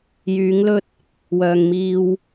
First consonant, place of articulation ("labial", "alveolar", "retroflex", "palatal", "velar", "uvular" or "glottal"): palatal